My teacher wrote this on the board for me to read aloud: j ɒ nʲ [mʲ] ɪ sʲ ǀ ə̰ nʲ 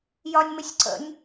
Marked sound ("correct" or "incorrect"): incorrect